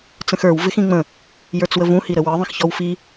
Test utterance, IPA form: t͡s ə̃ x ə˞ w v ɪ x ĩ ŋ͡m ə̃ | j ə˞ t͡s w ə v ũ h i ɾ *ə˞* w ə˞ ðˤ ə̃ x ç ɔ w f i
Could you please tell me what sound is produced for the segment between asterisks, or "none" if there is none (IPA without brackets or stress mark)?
ə